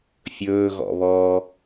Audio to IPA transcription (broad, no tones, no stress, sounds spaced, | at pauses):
fʲ ɵː ɣ ɔ̰ β ɔː